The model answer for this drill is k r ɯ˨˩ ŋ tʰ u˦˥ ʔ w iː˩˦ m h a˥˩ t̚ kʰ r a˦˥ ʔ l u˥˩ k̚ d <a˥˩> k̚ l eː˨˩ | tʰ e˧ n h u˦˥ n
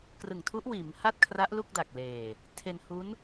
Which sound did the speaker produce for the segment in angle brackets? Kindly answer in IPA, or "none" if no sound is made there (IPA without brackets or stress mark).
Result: a˨˩